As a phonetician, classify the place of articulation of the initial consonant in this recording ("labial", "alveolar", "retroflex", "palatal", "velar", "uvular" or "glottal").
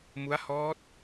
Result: labial